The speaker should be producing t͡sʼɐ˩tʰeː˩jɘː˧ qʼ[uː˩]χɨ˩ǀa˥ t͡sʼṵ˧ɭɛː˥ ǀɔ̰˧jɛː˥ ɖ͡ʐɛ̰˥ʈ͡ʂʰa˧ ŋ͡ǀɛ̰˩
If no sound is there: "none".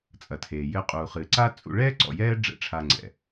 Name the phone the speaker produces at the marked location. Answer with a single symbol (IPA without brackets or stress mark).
uː˩